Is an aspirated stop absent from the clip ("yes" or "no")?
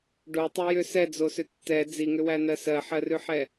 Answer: yes